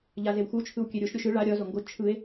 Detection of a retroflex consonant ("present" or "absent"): present